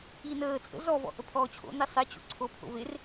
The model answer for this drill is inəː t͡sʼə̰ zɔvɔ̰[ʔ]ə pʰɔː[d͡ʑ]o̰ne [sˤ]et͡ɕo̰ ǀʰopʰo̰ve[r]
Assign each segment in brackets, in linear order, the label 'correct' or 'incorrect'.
correct, incorrect: t͡ɕʰ, correct, correct

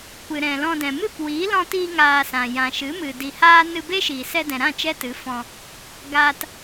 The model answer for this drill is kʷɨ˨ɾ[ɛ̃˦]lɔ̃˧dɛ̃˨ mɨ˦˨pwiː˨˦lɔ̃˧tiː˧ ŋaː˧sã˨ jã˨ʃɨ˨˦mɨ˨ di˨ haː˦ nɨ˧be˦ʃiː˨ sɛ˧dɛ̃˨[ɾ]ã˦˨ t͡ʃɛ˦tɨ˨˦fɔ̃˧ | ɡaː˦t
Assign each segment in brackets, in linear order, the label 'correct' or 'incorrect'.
incorrect: ɛ̃˨, correct

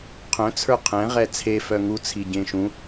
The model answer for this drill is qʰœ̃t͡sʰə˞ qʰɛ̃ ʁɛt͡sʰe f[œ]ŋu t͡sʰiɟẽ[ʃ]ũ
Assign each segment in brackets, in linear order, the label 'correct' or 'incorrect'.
correct, correct

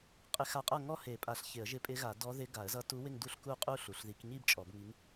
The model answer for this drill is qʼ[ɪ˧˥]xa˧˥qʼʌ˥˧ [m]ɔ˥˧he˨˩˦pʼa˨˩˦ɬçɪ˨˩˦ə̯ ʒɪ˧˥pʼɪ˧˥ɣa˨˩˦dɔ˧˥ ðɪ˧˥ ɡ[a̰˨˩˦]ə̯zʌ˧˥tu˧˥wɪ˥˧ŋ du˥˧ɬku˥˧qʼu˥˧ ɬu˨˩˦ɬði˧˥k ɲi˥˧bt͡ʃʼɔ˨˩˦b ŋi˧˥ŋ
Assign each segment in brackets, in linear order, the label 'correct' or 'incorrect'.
correct, incorrect: ŋ, incorrect: a˨˩˦

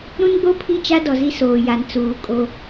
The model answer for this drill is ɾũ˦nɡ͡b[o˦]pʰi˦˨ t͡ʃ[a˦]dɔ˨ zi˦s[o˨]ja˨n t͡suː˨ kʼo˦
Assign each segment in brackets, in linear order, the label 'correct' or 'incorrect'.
correct, correct, incorrect: oː˨

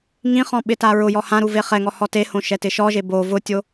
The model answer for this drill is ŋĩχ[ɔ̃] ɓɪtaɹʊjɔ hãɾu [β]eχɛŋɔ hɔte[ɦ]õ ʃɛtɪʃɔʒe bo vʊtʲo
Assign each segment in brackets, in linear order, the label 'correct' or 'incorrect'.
correct, incorrect: v, incorrect: h

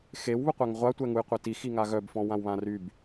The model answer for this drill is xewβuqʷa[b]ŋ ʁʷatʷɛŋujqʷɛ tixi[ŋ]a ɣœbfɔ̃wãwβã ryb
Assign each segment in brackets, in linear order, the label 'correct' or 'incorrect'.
incorrect: none, correct

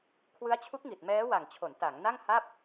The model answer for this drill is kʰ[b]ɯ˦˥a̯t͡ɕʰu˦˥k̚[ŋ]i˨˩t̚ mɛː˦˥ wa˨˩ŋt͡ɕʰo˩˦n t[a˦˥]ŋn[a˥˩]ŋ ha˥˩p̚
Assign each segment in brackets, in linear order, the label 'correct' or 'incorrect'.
incorrect: w, correct, incorrect: a˩˦, correct

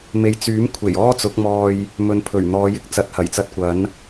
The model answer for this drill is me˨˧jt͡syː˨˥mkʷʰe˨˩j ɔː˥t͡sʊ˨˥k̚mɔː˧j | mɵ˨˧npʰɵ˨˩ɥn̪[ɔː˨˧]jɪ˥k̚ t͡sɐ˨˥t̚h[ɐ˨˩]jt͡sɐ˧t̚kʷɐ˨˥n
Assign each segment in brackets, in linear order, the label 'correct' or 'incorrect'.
correct, correct

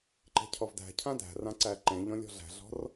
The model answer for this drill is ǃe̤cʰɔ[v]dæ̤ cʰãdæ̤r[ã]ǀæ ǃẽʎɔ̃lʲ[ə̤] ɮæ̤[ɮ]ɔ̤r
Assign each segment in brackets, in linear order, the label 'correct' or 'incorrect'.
correct, correct, incorrect: ɔ̤, correct

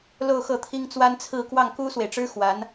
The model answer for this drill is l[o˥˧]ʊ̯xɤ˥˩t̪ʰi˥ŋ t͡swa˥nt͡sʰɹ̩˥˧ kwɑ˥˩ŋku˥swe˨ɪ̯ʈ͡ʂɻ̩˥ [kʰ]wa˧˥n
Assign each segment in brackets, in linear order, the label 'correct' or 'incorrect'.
correct, incorrect: x

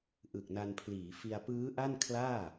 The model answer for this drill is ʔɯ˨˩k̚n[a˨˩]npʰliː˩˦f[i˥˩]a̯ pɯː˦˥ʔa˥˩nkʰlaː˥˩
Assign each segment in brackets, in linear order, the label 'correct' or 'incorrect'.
incorrect: a˧, incorrect: i˧

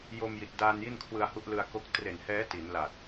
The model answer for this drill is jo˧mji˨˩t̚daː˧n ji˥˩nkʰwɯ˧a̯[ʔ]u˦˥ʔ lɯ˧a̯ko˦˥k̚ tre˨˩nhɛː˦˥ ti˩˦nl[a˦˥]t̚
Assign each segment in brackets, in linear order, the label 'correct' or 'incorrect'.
incorrect: h, incorrect: a˨˩

